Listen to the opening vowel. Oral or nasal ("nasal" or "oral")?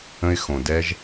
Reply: nasal